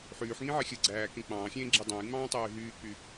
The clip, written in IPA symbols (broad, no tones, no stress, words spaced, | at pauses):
ħyːħŋĩʕe xʲɯɡ͡ǀæːkẽ k͡pɑ̃ːxʲẽːɡ͡ǁi dˤɑ̃jŋ͡mɑ̃ːtˤyː ɦyːk͡py